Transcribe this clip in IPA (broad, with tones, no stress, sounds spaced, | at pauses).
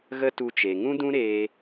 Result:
ɣ ə˦ t u˧ t͡ʃ e˨ ŋ ũ˦ d ũ˦ ɾ eː˧